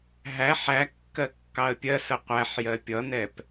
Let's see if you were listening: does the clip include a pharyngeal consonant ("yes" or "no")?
yes